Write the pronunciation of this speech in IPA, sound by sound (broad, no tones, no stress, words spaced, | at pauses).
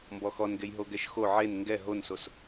mbɔxɔnɡej ɦoɡɛʃxo ʕen ŋɡɛ ɦonsos